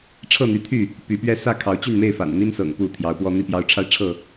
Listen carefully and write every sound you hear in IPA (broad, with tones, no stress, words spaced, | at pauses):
ʈ͡ʂʰɤ˥˨n̪y˨˦t̪ʰy˥˨ | py˨˦pɥɛ˦ sä˥˨ kʰɑ˨˦ʊ̯t͡ɕy˥˨nme˥˨ɪ̯ fa̰˨˩n n̪i˦nsɤ̰˨˩ŋ pu˥˨t̪ʰjɑ˨˦ʊ̯pwɔ˦n̪i˥˨ pjɑ˨˦ʊ̯ʈ͡ʂʰa˧ɪ̯ ʈ͡ʂʰɤ˥˨